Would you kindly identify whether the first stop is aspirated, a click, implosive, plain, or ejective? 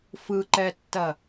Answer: click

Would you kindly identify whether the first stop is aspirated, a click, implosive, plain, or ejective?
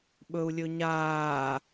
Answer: implosive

